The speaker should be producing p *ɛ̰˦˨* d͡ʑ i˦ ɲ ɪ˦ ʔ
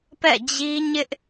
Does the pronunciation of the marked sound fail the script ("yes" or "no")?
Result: no